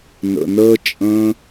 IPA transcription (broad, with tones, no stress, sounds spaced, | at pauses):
n ə̰˧ n əː˦ t͡ʃʼ ə̃ː˦